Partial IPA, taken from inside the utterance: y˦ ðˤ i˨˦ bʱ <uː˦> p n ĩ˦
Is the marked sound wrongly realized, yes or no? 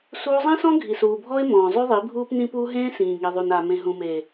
no